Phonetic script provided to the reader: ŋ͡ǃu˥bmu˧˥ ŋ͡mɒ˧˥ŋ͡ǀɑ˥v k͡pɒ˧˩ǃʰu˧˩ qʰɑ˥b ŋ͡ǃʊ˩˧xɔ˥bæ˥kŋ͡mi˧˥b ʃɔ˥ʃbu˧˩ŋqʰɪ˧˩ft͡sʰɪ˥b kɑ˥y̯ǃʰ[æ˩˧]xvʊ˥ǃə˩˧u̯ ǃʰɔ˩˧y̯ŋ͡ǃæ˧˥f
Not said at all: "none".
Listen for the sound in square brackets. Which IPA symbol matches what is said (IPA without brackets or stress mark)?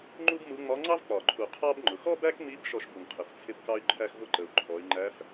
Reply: æ˥